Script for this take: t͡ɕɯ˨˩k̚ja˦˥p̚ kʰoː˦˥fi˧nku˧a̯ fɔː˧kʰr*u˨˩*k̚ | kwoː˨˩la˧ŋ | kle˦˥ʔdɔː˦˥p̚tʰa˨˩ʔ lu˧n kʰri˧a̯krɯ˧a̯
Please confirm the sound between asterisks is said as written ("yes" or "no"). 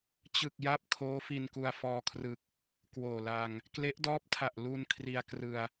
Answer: no